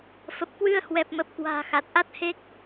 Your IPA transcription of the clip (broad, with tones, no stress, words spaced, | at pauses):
fə˨˩p̚kwɨ˧ə̯ hwɛ˨˩p̚mə˨˩p̚kwa̤ː˨˩ xa˨˩t̚ʔa˦˥t̚he˦˥k̚